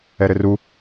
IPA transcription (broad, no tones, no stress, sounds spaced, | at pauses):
ɛ ɾ ɘ r u